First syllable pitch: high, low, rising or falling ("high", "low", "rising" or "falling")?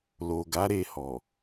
low